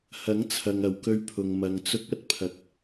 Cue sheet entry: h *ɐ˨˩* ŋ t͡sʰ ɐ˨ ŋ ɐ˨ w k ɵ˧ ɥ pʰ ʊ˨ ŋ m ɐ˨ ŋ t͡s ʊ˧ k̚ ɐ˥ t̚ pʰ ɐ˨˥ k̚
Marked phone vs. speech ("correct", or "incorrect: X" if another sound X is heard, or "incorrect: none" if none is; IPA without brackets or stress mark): incorrect: ɐ˨˥